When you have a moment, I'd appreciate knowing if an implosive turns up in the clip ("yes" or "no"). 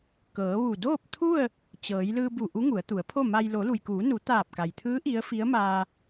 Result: no